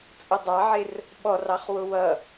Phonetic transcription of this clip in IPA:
t͡sʼ ʊ dˤ ɑ ʕ ɪ r | ɓ ɔ r ɑ χ w ʊ w ʌ

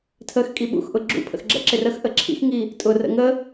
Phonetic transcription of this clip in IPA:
tʰ ə x kʼ i ɓ ṵ x ʔ ʊ ɡ͡ǁ ṵ pʰ ə̰ x ɡ͡ǁ ə̰ ǁ ɪ r ə x ʔ ə ǁʰ ḭ x ŋ i | tʼ ʊ r ə̰ ŋ ə

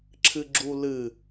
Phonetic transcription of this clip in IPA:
ǁʰ ɨ ɡ͡ǁ u l ɨ

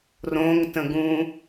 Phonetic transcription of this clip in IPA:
r õ ŋ t ə̃ ɡ ũ

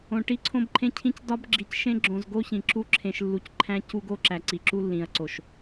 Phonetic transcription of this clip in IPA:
õ˨ ʈ i˦ ǀʰ õ˦ b ǃʰ ẽ˦ cʰ ĩ˦ c d ɒ˦ b ɡ͡ǁ i˨ c ʃ ẽ˦ ɡ͡ǁ õ˨ z ɡ o˦ ç ĩ˨ ǁ u˦ ǁʰ ẽ˨ ʃ lː u˨ c ǃʰ æ̃˦ c u˦ ɡ o˦ ǁ æ˨ ǀ i˨ ǁ u˦ lː ĩ˨ ɐ̯ ǀ o˨ ʃ

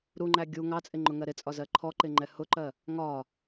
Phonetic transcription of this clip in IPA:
ɾ u ŋ͡ǃ æ ɡʲ u ŋ ɑ t͡sʼ ɪ ŋ͡ǃ ʊ ŋ ɜ ɾ ɪ t͡sʼ ɒ z ɜ ǃʰ ɔ ǃ ɪ ŋ͡ǃ ɛ h ʊ ǃ ɜ | ŋ ɒ

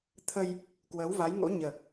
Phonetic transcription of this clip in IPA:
t̪ʰ ə˧ j | k w əː˨˦ w v a˨˦ j ŋ o̰˧˥ ɲ əː˨˩ k̚

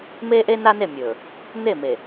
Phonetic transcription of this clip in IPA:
m eː˦ ʔ e˦ n a˦ n e˦˨ mʲ ɵː˨ | n̪ e˦˨ m e˨

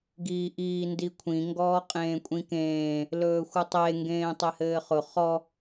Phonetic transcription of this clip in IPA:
ɡ iː ʔ iː n d i kʷʰ ĩ ŋ ɡ ɔː qʼ ẽː kʷʼ ĩ k ẽː | l ɵː xʷ ɯ tˤ e ŋ ɡ ẽː tˤ e h ɘː χ ʊ χ ɔ

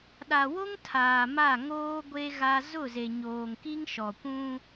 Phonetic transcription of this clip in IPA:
ɗ a˨ w o˦ ŋ tʰ aː˨ m a˦˨ ŋ oː˦ ɡʷ e˦ ɣ a˦ z ʊ˦˨ z e˨ ɲ oː˨ ŋ k i˦ ŋ ʃ ɔ˨ kʷ ũ˦

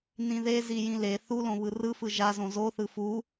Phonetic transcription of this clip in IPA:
n ĩ ð e z i j ĩ l e θ u l õ β ɯ r ɯ f ɯ ʒ a z õ z o θ ɯ f u

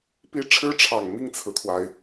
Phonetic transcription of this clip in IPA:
p i˥ ʈ͡ʂʰ ɻ̩˥ ʈ͡ʂʰ ɑ˨˩ ŋ m i˥˩ ŋ t͡sʰ ɹ̩˩ t̪ʰ w a˩ ɪ̯

